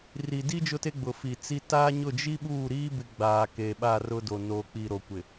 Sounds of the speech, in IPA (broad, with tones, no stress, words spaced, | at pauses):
ri˨di˦ d͡ʒʊ˦te˦ ɡ͡bʊ˨fi˨ t͡si˦ ta˦ ɲʊ˦˨d͡ʒi˦ɓuː˦˨ɾiː˦ bɪ˦ɡ͡baː˨ke˨ɓa˦˨ rʊ˦do˨ no˨k͡pi˨ ɾo˨kʷɪ˨